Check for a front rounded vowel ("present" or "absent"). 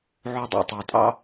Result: absent